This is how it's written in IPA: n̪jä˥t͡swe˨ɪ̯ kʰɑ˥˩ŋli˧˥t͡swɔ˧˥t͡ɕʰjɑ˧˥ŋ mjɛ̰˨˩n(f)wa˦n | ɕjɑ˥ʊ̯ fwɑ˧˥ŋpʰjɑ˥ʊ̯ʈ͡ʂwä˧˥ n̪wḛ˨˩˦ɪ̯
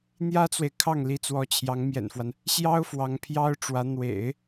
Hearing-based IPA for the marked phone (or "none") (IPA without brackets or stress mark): f